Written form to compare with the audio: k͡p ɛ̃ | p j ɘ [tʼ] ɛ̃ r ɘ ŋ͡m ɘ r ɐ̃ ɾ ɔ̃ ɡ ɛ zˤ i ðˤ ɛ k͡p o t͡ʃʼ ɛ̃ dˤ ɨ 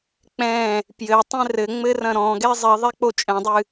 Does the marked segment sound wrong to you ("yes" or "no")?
yes